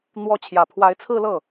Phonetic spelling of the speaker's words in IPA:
n̪wɔ˧˥ t͡ɕʰjä˨˩pʰwa˧˥ɪ̯t͡sʰɹ̩˥˧lɤ˥˩

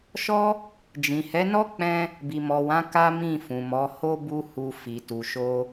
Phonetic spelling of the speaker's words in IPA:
ʃɔ˦ | d͡ʒĩ˨hɛ˨˦nɔ˦k͡pɛ̃˧ | bi˨mɔ˨wã˨˦ ka˦ mĩ˦˨fũ˨mɔ˨˦ho˦ bu˦hu˧fi˨ tu˨ʃo˧

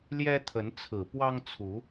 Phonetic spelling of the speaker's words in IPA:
ljɛ˦t̪ʰə˨˦nt͡sʰɹ̩˨˩ pwɑ˦ŋt͡sʰu˨˦

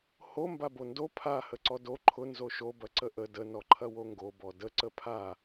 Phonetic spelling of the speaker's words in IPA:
ho mbabondo pʰa həǀɔdo ǃʰʊ nzoʃo bɐǀəʔə də nɔǃʰɐwoŋɡo bɔdə ǀəpʰa

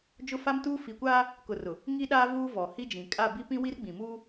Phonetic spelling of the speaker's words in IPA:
d͡ʒʊ˦fa˦mtuː˦ fi˨kʷaː˦ | kʊ˨rʊ˨ | ŋi˦ɗaː˦ vuː˦vɔ˨hi˦d͡ʒĩ˨ kʼa˦˨bi˦pĩ˦ wi˦rɡ͡bĩ˨muː˦

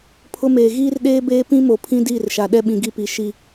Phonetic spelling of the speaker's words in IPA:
pʰʊ˦meː˨ ɣiː˦rɗeː˦beː˦ pĩ˦mo˨ pʰĩ˦diː˦˨rʃa˨ ɗɛ˦ɓĩ˨ɡi˦˨pi˨˦ ʃi˦

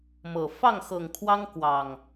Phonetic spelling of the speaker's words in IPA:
mɤ˨˩ fɑ˥˨ŋxɤ˨˩ŋkʰwɑ˦ŋ kwɑ˨˩ŋ

